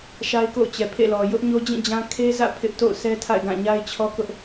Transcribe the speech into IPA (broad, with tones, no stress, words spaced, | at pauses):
ʃa˦ɪ̯ko̰˦˨ʊ̯ t͡ɕɛ˨pʰḛ˦˨lɔ˨ jʊ˦ʔɲo˦ d͡ʑĩ˦˨d͡ʑã˦ kʰe˦zä̰˦˨ pʰɪ˦ʔ to̰˦˨ʊ̯ sɛ˦tʰa̰˦˨ɪ̯ɡã˦˨ ɲa˦ɪ̯t͡ɕʰɔ˦kʊ˦ʔ